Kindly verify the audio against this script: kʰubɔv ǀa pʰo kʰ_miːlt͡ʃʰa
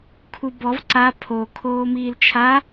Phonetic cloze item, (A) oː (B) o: A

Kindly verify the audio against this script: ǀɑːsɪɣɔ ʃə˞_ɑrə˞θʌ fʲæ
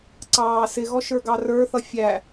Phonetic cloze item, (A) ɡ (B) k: A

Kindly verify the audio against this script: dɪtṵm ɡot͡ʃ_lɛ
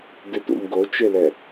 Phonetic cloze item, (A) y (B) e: B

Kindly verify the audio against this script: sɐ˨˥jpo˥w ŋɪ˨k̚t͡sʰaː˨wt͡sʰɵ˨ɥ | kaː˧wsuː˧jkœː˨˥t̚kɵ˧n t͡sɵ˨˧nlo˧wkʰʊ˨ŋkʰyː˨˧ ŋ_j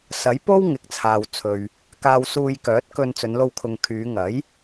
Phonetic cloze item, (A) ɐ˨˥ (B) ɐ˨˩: A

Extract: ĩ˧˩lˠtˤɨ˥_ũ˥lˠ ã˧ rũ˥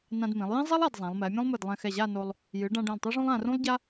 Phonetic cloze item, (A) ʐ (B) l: A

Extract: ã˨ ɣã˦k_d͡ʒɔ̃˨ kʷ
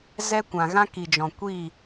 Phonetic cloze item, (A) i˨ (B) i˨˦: A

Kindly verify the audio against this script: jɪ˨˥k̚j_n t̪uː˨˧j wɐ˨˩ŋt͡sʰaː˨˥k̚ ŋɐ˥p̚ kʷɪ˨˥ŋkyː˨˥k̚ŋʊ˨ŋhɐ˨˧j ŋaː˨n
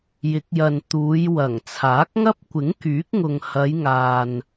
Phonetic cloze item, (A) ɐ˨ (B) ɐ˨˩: A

